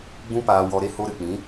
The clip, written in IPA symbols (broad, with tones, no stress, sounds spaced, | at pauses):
ɡ͡b ũ˦ p aː˧ w ɔ˧ ɾ e˦ h o˧ ɾ ɨ˨ k͡p ĩ˨˦